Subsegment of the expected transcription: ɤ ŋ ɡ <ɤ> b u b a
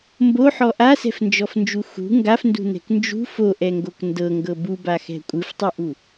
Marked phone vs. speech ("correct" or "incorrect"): correct